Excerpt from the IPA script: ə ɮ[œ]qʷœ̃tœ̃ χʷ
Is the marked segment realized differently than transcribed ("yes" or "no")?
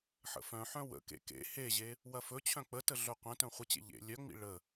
no